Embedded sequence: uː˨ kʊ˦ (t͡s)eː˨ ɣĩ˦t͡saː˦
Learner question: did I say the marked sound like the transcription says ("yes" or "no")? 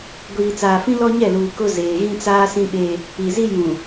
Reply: no